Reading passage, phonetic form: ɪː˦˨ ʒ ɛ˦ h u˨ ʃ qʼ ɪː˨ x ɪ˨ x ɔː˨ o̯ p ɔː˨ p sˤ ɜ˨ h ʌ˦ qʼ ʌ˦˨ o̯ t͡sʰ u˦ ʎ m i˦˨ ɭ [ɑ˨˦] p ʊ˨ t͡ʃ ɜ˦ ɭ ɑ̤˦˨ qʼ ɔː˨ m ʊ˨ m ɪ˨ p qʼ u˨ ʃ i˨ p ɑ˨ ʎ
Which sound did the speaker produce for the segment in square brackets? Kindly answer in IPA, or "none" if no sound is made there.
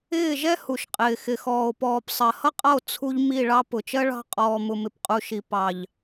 ɑ˦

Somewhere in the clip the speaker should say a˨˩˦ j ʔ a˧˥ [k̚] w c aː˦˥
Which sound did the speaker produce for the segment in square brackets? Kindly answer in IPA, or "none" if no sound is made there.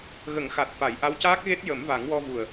none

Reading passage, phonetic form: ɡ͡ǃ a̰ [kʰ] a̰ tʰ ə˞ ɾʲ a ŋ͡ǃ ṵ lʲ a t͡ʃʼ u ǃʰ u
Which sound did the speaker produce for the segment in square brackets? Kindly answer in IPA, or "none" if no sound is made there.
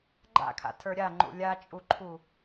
kʰ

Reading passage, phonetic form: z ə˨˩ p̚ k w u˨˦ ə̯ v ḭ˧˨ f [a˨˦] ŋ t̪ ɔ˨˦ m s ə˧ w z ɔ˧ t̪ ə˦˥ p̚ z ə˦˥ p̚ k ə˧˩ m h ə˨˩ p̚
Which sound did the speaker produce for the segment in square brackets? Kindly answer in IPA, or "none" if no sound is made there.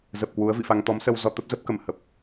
a˧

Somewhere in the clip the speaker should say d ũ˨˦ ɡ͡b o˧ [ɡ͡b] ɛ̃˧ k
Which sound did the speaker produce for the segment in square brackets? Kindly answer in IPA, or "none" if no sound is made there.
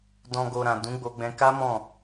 ɡ͡b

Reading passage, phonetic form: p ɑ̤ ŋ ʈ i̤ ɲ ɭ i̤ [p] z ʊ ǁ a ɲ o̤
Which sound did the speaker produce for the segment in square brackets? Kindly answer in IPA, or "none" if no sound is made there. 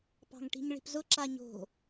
p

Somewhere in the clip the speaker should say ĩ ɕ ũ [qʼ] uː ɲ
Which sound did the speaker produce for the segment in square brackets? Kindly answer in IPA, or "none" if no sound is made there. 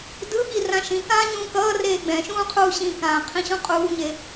qʼ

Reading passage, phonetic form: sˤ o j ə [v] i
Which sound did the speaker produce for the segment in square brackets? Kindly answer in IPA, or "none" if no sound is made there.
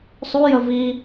v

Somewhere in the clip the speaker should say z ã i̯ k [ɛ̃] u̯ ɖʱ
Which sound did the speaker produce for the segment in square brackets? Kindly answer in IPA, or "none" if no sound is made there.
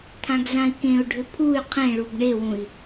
ẽ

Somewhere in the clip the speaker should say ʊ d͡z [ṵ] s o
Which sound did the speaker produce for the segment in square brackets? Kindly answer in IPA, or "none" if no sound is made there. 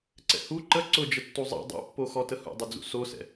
ṵ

